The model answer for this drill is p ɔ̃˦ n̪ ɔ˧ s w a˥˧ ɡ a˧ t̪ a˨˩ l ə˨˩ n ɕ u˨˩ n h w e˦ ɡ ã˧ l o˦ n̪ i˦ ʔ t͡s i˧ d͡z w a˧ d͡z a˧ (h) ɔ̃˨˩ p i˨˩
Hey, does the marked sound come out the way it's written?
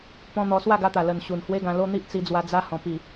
yes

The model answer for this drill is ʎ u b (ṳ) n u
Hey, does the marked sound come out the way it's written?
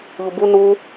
no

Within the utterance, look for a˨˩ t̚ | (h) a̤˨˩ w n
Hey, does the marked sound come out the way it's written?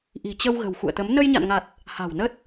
yes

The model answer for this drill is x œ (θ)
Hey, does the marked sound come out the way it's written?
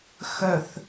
yes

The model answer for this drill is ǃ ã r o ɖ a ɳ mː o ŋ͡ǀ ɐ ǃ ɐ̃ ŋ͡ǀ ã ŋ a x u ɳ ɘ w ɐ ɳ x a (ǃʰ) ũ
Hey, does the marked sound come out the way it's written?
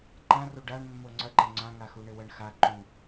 no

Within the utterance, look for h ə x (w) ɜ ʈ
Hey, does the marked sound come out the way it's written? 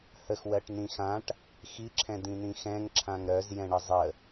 yes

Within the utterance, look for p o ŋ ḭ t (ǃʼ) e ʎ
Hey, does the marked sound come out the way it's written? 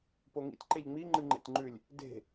no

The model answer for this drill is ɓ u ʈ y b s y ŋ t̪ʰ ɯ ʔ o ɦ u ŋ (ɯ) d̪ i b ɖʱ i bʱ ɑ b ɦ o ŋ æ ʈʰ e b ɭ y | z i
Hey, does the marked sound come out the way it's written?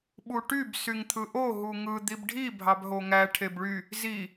yes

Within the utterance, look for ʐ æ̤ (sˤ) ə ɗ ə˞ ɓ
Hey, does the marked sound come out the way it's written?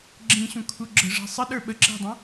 yes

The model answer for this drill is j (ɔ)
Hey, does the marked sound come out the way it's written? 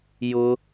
no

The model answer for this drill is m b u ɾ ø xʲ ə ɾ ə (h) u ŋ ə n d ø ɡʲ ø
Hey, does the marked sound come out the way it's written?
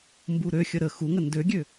no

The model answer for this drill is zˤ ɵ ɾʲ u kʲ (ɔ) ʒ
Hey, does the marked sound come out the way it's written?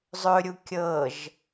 no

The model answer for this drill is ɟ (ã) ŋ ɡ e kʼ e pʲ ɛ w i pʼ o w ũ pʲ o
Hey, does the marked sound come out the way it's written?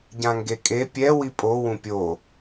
yes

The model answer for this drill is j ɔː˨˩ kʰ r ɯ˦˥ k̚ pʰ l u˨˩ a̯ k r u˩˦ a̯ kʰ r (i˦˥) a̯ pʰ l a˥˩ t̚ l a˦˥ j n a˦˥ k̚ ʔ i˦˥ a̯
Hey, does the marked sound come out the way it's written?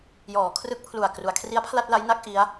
yes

